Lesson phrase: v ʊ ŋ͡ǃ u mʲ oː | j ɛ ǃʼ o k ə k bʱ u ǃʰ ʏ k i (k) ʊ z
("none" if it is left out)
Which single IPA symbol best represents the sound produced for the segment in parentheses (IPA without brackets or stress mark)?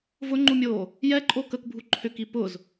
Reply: p